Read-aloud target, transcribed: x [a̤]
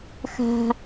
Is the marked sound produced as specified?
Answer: yes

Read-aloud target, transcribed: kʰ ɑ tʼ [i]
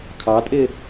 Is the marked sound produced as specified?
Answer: no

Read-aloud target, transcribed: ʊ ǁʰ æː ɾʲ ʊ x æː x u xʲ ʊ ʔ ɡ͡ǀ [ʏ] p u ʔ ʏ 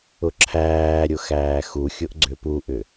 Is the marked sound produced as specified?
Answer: yes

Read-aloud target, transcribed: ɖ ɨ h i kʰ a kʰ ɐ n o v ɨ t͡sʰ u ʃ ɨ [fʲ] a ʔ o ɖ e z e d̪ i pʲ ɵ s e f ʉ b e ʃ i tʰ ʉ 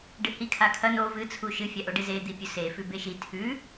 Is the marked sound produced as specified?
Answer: yes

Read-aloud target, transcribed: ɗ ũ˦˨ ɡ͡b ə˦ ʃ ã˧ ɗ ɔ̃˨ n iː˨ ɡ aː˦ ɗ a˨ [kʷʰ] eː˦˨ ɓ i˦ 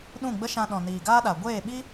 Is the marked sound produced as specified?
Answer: no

